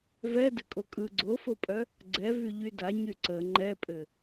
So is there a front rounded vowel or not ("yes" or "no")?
yes